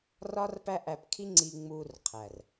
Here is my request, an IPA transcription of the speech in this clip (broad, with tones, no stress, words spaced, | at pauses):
rɒ˦rpæ˦ʔæ˧pkʰi˦ ŋ͡ǀi˧ŋ͡mu˧rqʰæ˨r